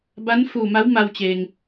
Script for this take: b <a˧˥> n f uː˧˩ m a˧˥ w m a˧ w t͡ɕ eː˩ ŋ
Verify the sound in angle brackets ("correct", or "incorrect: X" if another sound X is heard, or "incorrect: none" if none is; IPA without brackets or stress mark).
correct